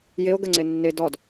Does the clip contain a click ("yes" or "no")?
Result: yes